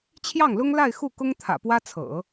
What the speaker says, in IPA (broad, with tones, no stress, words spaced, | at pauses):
t͡ɕʰjɑ˥˩ŋlʊ˥ŋla˥˧ɪ̯ xu˥˩kʊ˥ŋt̪ʰä̰˨˩ pwä˥t͡sʰɤ̰˨˩˦